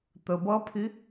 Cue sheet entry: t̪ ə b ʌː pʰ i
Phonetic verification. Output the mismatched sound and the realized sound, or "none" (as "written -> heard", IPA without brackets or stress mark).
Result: none